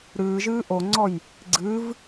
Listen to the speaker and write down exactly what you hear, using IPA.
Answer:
ɾɨːʒɨː ʔoŋ͡ǀɔj | ɡ͡ǀɨv

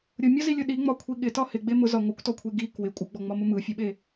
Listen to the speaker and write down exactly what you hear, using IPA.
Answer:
ɾʲʊmʲɒzilʲʊ ɗiŋ͡mɒkʷʰi ɠɪtɒ hɪɡ͡be mʊzɒ ŋʷɪkʷtɔkʷʰe ɡi kwɪ kʷʼɯɡ͡bɔŋ͡mɒmʊ mɯfʲɯɓe

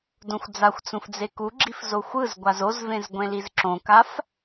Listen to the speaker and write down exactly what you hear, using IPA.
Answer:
dõxʷd͡zaxʷt͡sũf d͡zekuɡ͡ǁif zoxʷɯzɡʷaz ozvẽz ɡʷẽlizǁõkaf

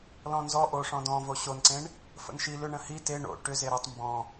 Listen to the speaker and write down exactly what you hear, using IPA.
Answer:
lɔ̃nzɔ ʔoʂɔ̃ dɔ̃vo ɕonǀẽɳ | fə̰nʃi lʏ ɳə̃hi te ɳo̰ ʈʏ zeɾʏtˤ mbɔ̃

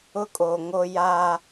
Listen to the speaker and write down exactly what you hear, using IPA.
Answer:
ʊ˦kʼoː˨ ŋo˦ jaː˦

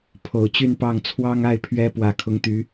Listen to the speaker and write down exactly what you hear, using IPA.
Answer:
pʰo˨˩ʊ̯t͡ɕy˥˧npɑ˥˩ŋ t͡sʰwɑ˥ŋa˥˩ɪ̯ pʰɥɛ˥ pwä˨˩kʰʊ˧˥ŋt̪y˧˥

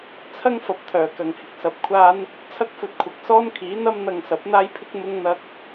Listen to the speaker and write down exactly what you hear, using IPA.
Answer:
t͡sʰɐ˥ŋfɐ˨p̚t̪ʰœː˨˩kɐ˨˩ŋ hɪ˨k̚sɐ˨˥p̚kʷʰaː˥n | t͡sʰɐ˥k̚fɵ˧t̚kʷʰɐ˨k̚ sɔː˥nkʰiː˨˥n̪ɐ˥mn̪ɐ˧ŋ sɐ˨˥p̚n̪aː˥jpʰɪ˥k̚ mʊ˥ŋn̪ɐ˥k̚

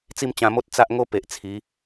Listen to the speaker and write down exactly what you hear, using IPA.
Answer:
t͡si˥˧mt͡ɕã˧mo˦t̚ t͡sa˦ʔŋo˦pe˨ʔ t͡sʰi˨˦

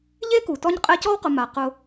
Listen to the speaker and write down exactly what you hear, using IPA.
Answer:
ʎe˥ku˩tɔ˦ɲ qʼɛ˦cɔ˥wqʊ˨ ma˩qʊ˨

